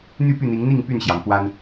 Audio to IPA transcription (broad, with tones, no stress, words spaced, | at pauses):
n̪y˥˨py˥˨n̪i˨˦ŋn̪i˥˨ŋ py˥˨nɕjɑ˩ŋ kwa˦n